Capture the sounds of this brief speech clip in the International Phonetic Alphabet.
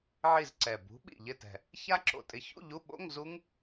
ʕi˦˨z ǀɛ˨˩ bṳ˨˥ ɓḭ˨˩ʎɪ˦˨tɛ̤˨˩ | ça˦˥ǁo̰˨˩tʼɪ˨˥ çṵ˧˥˧ʎu˧˥˧ɓo̰˧˥˧ŋ zu˦˥ŋ

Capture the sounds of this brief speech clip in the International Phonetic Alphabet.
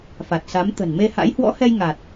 fa˨˩t̚sa˨˦m t̪ə̤˨˩nme˧ha̰˧˥j hwɔ̰˧˥hɛ˧j ŋa˨˩t̚

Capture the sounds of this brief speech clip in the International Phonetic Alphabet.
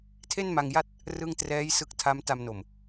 tʰe˥˩nma˧ŋja˥˩t̚ | rɯ˥˩ŋ trɛː˦˥j sɯ˦˥k̚ tʰa˦˥m ta˧mno˨˩m

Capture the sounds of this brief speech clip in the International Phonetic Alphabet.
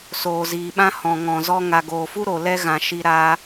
soː˨ziː˨ɓã˦ hɔ̃˨ŋɔ̃˨zɔ˧ ŋa˨ɡoː˨fu˦ ɾo˨lɛ˦ɣã˨ ʃi˧ ɾa˧

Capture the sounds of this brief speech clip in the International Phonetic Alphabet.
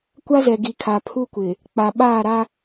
kʷa˦zɛ˨ɡi˨ kʰa˨pʰu˦kʷɪ˨ | k͡pa˨ɓaː˦˨ɾa˦

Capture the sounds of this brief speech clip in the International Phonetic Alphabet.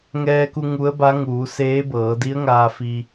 ŋɛː˧ku˧ ŋu˧˥ə̯ba˧˥ ŋuː˩˧seː˧˥bɤː˩˧ di˧˥ə̯ŋaː˧ fi˧

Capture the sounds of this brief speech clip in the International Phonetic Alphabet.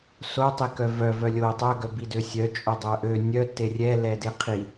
sotˤikœ vœ vœlʲo tˤœɡœbidø sʲœt͡ʃʼo dˤœʔø nʲœ terʲɛ lɛdeqʰi

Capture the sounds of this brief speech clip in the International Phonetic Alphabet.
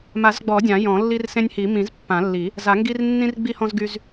ma˨˩˦zɡ͡bɔ˨˩˦ dʲã˨˩˦jɔ̃˨˩˦ lːi˦rsẽ˦nʲhi˨˩˦ mĩ˨˩˦zpːã˨˩˦lːi˨˩˦ | za˨˩˦ŋɡi˦r nːĩ˦rɡ͡bi˦hɔ̃˦z ɡy˦z

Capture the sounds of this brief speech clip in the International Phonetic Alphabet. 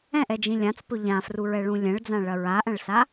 ɛ̃ʔɛd͡ʒĩ lʲãt͡spɵ ʎãfruɹɛɭũ lʲɛ̃ɭd͡zãɭɐ ɹaʔɐ̃ɭsa

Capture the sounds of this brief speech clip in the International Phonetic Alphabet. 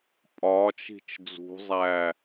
pʼɒːt͡ʃ i̤t͡ʃd͡zṳzˤæː

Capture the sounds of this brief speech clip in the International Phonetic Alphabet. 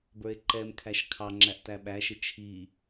bə˞e̯ǃɛmkʰæʃ kʰɑŋ͡ǁæʔ tæɓæʃɪ t͡ʃʰi

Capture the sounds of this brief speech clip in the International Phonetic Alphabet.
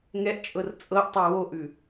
ŋɛʔt͡ʃʼɤr t͡sʼɤʔtˤɤ woʔʉ

